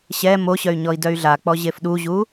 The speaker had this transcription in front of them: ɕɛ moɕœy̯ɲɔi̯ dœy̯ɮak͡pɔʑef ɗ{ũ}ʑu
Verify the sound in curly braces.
incorrect: u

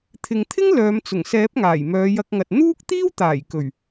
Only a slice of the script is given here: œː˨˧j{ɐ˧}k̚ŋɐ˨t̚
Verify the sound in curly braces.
correct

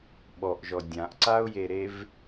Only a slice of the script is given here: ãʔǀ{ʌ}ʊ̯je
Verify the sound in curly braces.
incorrect: a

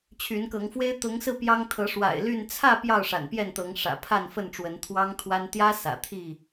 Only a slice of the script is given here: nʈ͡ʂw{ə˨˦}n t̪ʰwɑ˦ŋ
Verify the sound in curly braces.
correct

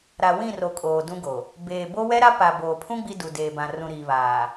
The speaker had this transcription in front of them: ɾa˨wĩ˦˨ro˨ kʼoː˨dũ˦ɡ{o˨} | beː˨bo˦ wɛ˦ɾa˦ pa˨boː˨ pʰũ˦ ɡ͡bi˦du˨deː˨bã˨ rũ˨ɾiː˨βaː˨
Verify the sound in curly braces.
correct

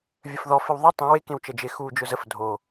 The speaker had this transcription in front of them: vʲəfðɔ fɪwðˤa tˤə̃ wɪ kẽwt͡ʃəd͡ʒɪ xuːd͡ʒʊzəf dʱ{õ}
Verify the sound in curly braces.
incorrect: o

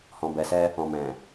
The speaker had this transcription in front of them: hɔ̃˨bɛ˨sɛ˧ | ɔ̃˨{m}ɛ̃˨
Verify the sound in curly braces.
correct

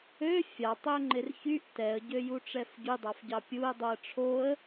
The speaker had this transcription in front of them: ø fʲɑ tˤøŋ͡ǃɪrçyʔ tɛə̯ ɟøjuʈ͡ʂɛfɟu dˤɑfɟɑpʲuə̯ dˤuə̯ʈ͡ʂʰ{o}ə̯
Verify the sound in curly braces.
correct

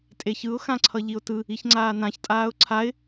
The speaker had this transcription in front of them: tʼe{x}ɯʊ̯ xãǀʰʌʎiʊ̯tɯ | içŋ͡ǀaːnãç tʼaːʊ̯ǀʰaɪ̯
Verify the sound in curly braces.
incorrect: ç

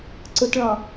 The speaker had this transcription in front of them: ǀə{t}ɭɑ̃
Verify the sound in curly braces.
correct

